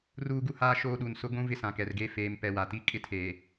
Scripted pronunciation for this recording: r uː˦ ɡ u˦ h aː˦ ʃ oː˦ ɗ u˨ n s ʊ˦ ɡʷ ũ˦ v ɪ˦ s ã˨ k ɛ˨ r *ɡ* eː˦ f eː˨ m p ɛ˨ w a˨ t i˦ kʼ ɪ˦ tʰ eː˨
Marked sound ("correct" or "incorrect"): correct